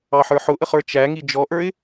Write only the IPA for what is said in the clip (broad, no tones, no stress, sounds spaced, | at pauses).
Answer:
ɑ ħ ə˞ ħ ʊ ʔ ə χ ə˞ t͡ʃ æ ŋ i d͡ʒ ɔ ʔ ə˞ ɪ̯